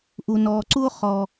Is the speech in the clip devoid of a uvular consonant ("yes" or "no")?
no